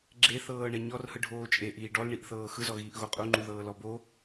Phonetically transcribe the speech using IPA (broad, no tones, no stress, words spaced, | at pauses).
ɡ͡ǁeθɤːɳɛ ɲɔrhɯɖʱoː t͡ʃʼeʔiː ɖɔlɳiʔθɤː xɯzɔɣiːʔɣo qʼuŋ͡ǃuðɤːlɔ bo